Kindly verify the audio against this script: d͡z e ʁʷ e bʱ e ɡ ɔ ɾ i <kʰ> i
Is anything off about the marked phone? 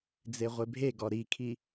no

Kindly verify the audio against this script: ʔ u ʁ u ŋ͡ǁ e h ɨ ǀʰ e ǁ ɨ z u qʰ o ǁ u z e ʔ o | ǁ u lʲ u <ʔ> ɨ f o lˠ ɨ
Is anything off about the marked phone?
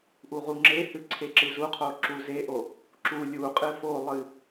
yes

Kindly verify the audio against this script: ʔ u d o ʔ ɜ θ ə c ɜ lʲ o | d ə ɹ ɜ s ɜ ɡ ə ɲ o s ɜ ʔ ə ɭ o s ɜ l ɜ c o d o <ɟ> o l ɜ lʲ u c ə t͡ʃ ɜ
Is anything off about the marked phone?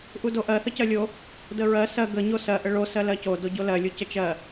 no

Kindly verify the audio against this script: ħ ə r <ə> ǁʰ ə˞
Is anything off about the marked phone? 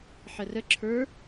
no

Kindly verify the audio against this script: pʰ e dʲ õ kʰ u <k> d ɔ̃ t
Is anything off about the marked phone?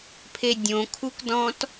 no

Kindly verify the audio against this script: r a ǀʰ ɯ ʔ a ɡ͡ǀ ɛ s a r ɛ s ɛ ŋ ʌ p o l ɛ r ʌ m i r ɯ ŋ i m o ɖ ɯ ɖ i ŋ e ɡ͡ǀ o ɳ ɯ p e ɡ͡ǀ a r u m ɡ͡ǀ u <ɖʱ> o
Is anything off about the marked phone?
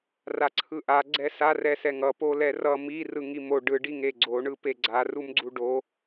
yes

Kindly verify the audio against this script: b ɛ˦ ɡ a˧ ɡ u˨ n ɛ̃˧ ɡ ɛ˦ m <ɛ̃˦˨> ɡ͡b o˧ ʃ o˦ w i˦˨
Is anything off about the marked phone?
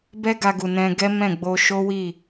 no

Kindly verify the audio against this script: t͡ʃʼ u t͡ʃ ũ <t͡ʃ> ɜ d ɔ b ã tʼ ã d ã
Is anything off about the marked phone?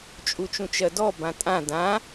no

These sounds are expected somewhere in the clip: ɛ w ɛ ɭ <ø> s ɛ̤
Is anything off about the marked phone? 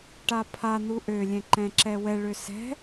no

